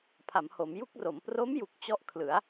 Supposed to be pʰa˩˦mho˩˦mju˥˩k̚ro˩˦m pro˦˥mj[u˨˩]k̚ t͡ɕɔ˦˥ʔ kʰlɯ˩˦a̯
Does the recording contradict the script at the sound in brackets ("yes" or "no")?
no